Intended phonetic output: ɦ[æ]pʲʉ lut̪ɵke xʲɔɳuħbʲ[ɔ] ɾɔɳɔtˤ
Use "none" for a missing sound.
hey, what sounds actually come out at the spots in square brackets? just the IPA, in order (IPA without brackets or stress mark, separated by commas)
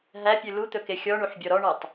æ, ɔ